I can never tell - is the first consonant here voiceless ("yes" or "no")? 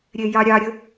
no